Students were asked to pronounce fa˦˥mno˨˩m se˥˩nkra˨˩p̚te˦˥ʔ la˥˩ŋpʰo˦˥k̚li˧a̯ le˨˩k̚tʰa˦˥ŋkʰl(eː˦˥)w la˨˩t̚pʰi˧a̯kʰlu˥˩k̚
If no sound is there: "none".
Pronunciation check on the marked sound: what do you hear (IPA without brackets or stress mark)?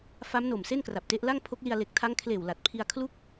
eː˨˩